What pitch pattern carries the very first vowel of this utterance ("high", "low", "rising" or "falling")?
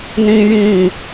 high